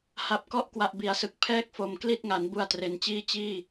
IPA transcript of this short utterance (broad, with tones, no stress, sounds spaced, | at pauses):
h a˨˩ p̚ k ɔ˦˥ ʔ k w a˨˩ ʔ b i˩˦ a̯ s ɯ˨˩ k̚ pʰ ɛː˥˩ k̚ f o˨˩ m k l i˥˩ t̚ ŋ a˩˦ n b u˧ a̯ t r e˨˩ n t͡ɕ iː˥˩ t͡ɕ iː˥˩